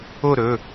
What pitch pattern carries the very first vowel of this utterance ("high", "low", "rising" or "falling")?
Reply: falling